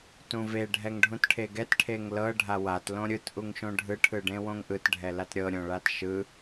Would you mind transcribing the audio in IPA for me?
t ũ v e ɖʱ ɛ ŋ ɖʱ ũ t ʈʰ e ɡ ɛ t ʈʰ e ŋ l ɤ ɖʱ a w a t l õ ɾʲ ɯ t ʔ u ŋ ʃ õ ɖʱ ɯ ʈʰ ɯ ɖ ẽ w õ ŋ ʔ ɯ t ɖʱ ɛ l a t ɾʲ ɤ ɾʲ õ ɭ a t ʃ ɯ

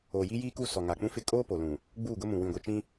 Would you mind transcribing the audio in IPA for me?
oː˨ j i˦ j iː˦ k u˦˨ s ɔ˨ ŋ a˨ k͡p ũ˦ f ɪ˦˨ kʼ oː˦ p o˨ l ũ˨ | ɡ͡b uː˦˨ ɡ ʊ˦ m ũ˨ w ĩ˨ ɡʷ i˨ t͡ʃ ĩ˦

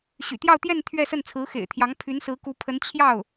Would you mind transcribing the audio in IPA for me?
ɕ y̰˨˩ t̪ j ɑ˥˧ ʊ̯ t̪ j ɛ˥˧ n t̪ʰ ɥ ɛ˥˧ s ə˥˩ n t͡sʰ ɹ̩˧˥ x ḛ˨˩ ɪ̯ t̪ʰ j ɑ˧˥ ŋ pʰ y˧˥ n s ɹ̩˧˥ k u˧˥ pʰ ə˧˥ n t͡ɕʰ j ɑ˥˩ ʊ̯

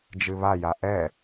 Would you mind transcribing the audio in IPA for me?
d͡ʒ ɨ β a j a ʔ ɛ

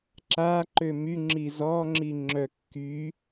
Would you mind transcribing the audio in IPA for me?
ǁ a ǃ ø m y ŋ͡ǁ i z ɔ ŋ͡ǁ i ŋ͡ǁ œ kː y

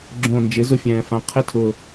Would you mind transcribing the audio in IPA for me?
ɡ͡ǁ õ˨˩ n d͡ʒ ɪ˩˥ z ʊ˥˩ fʲ ɛ̃ː˨˩ f ã˩˥ qʰ ɪ˧˥˧ tʰ ʊ˨˩

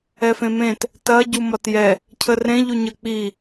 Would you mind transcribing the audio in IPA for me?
ɛ f ẽ m ẽ t | t ɐ ɟ u m ɒ t j ɛ | cʰ ə r ẽ ʎ u ɲ ə k͡p i

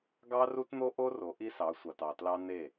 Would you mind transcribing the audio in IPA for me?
ɡ ɑ˦ r u˦ t n̪ o˦ ʔ o˦ r o˨˦ ʔ i˦ s ɑ˨˦ sʷ ɑ˨ t ɑ˨ t l ɑ˦ n e˦˨

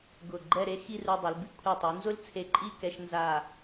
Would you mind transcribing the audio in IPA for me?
ɡ ʊ˧˩ ɡ͡ǃ ɛ˥˧ ɾ e˥ x i˥˧ r u˧ dˤ e˩˧ l b i˥ kʷʰ e˧˩ tˤ u˩˧ n z ʊ˥ l t͡sʰ e˧ ǃʼ i˥˧ k ɛ˧ ʃ n z a˧˩

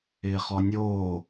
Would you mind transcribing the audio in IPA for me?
ɪː χ ɔ nʲ oː

